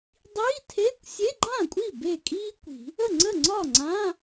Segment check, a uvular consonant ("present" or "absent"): absent